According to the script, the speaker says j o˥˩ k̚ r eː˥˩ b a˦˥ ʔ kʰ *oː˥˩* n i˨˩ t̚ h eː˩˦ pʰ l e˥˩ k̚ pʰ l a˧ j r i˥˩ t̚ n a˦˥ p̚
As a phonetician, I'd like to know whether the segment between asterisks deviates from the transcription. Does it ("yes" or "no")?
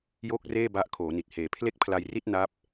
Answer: yes